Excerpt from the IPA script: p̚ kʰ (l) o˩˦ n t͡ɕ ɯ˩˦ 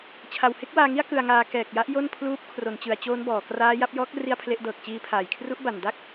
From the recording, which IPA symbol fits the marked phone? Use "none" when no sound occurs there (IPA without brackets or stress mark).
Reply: r